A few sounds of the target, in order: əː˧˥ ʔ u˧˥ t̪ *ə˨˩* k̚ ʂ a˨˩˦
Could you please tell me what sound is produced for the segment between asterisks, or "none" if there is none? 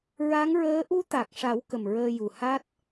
a˨˩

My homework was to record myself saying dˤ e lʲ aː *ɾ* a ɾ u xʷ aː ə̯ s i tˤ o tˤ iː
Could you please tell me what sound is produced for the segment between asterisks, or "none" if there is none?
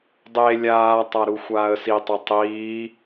tˤ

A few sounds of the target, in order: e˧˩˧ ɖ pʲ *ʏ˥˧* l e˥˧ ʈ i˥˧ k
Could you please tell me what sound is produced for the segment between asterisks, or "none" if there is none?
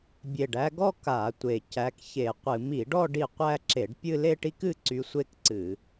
ɨ˥˧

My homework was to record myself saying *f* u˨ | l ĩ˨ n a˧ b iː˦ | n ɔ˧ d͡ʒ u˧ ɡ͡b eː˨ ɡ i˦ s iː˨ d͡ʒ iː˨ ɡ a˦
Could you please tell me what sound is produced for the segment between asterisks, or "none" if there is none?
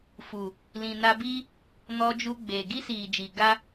f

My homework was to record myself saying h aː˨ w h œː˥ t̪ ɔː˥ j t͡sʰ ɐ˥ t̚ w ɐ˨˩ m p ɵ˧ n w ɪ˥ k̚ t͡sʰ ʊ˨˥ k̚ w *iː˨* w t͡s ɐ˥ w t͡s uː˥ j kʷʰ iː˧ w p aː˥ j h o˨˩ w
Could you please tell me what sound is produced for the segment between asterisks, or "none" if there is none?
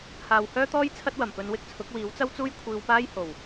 iː˨˥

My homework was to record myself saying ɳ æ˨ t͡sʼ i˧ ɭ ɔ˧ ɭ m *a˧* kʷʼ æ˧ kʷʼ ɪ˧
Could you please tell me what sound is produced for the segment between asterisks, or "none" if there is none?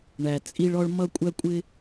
ʌ˧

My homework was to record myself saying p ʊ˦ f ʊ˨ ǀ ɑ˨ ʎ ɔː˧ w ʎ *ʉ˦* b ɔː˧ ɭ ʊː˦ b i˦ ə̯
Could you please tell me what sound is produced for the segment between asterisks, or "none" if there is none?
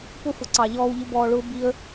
ʊ˦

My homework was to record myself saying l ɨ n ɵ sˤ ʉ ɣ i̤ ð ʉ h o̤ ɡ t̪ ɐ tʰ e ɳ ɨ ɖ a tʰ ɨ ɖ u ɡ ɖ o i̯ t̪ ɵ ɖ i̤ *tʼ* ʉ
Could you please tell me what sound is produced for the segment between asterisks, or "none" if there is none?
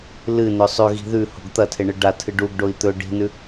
n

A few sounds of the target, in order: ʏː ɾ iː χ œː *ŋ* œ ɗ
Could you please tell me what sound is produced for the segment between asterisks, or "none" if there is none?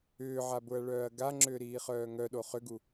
ŋ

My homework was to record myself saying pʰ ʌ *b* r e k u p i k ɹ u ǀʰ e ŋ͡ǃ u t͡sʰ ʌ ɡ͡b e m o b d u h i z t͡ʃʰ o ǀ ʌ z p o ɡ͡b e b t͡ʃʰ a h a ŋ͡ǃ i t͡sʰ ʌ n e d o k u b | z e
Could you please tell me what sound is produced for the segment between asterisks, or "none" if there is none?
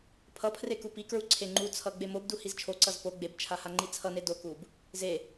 pʰ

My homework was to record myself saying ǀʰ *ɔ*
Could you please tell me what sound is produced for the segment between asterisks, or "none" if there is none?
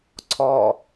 ɔ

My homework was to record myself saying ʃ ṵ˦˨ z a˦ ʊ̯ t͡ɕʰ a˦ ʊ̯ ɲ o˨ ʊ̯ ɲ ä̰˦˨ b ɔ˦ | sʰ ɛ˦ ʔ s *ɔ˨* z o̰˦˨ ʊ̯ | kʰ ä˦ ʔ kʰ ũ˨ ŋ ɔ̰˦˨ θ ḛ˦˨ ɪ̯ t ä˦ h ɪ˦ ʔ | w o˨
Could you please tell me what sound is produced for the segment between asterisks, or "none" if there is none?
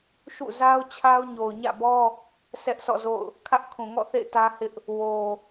ɔ̰˦˨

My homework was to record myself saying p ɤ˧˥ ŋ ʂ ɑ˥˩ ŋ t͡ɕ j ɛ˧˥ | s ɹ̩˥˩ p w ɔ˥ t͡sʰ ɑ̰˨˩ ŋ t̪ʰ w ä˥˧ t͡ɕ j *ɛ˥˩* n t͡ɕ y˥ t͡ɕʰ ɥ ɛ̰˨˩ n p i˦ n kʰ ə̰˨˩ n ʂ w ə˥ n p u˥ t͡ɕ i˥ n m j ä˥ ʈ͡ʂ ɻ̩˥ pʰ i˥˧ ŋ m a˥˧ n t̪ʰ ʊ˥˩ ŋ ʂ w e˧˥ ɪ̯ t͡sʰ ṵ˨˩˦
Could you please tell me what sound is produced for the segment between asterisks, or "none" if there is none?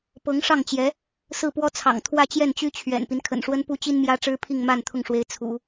ɛ˥˩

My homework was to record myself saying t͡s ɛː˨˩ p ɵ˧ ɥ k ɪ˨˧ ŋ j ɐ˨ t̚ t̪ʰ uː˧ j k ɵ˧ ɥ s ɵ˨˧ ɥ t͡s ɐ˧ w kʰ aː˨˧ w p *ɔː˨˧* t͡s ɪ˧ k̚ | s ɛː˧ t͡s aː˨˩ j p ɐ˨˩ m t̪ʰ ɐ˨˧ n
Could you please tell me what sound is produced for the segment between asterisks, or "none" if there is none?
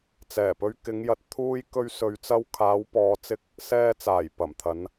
ɔː˨˧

